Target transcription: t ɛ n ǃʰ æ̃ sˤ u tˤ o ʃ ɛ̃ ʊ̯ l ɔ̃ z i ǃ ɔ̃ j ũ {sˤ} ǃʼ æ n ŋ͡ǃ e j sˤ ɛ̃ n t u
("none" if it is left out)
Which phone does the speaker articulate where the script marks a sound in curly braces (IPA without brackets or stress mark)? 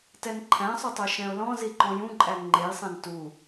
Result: none